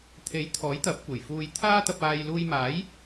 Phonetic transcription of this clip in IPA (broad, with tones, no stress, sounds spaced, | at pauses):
t̪ʰ e˨˥ j t̪ʰ ɔː˨˥ j t̪ ɐ˨˥ p̚ kʷ e˨˩ j f uː˧ j t̪ʰ aː˥ t̪ ɐ˧ p̚ aː˧ j l uː˧ j m aː˨˥ j